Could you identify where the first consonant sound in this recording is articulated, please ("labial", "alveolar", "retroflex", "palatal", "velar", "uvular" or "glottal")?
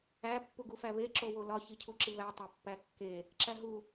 labial